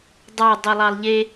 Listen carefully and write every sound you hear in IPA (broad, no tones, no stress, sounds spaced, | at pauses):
dˤ ɑ dˤ u lˠ ɑ lˠ ʎ e